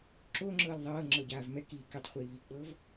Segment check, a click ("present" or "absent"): present